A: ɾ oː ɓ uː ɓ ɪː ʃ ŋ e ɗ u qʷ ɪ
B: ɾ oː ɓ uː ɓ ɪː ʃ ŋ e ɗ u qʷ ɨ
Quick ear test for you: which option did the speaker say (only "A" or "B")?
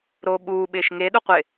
A